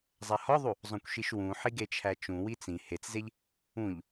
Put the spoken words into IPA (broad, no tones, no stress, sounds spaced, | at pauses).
zˤ æ h ɒ ðˤ u | zˤ õ kʷ ʃ i ʃ w ũ ħ i ɡ e t͡ʃʰ æ t͡ʃ ũ w i t͡s ĩ h e t͡s z e ʎ | ũ ʎ